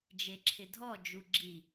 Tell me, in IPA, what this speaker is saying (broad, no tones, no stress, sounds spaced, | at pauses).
d͡ʒ e ǁʰ ɪ dʱ ɔ d͡ʒ u ɡ͡ǁ i